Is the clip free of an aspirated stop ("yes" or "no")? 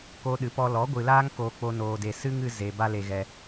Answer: yes